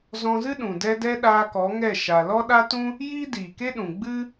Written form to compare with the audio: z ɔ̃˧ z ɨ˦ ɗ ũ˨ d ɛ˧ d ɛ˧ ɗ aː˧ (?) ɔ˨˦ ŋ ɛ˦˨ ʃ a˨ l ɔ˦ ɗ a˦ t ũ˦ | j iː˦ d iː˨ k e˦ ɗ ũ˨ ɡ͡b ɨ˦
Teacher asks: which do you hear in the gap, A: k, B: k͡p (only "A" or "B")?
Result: A